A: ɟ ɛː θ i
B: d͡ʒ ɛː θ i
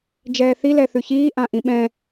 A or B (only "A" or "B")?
B